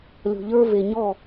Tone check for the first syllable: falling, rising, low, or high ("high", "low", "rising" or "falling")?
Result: low